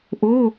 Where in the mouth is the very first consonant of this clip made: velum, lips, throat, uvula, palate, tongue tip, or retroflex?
throat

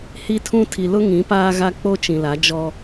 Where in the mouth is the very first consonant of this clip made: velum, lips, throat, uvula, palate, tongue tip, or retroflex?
throat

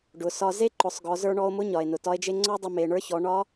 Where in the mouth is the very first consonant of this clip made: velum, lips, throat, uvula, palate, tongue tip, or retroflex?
retroflex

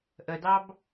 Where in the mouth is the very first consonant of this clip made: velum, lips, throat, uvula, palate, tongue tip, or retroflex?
throat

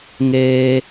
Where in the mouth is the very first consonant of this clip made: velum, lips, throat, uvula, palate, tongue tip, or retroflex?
velum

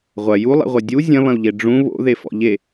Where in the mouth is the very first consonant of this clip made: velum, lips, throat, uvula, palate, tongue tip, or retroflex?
uvula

